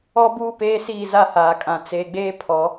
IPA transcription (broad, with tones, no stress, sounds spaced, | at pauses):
ɔ˦ b uː˦ p eː˦ s iː˦˨ z a˦˨ h aː˨ kʼ ã˨ t͡s e˨ ɡ͡b eː˦ pʰ ɔ˨˦